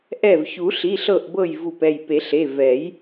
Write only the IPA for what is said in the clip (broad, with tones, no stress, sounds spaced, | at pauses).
ʔ ɛ˧˩ v ç u˨˩˦ ɬ i˩˧˩ ɬ ɤ˧˩ ʔ b ɤ˧˩ j v u˧˩ p ɛ˧˩ j p e˨˩˦ ɬ e˩˧˩ v ɛ˨˩˦ j